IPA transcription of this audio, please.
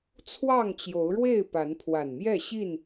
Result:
t͡sʰ w ɑ˥˨ ŋ t͡ɕ j o˨˦ ʊ̯ ɻ w e˥˨ ɪ̯ p a˨˦ n pʰ w a˨˩ n m j ɛ˥˨ ɕ i˥˨ n

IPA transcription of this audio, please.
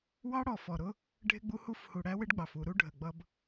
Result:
w ɑ˦ ɽ ɔ˨ f ɔ˨ ɾ ʊ˦ | ɖʱ ɪ˦ ɡ͡b u˦ h u˦ f h u˨ ɽ æ˦ w ɪ˦ ɖ ɡ͡b ɑ˨ f u˨ ɾ u˦ ɖʱ ə˨ ɡ͡b ʌ˦ b

